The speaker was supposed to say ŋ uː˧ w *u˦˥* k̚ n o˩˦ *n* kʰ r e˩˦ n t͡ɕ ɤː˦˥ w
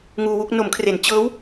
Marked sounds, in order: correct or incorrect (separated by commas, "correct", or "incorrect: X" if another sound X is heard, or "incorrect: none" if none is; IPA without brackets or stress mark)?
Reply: incorrect: u˥˩, incorrect: m